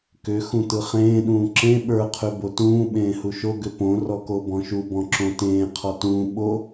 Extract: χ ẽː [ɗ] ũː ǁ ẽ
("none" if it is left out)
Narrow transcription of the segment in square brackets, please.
ɗ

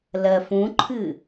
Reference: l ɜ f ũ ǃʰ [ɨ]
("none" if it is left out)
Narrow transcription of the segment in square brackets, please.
ɨ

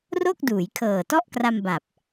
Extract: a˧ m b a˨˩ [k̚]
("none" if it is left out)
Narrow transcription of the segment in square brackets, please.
p̚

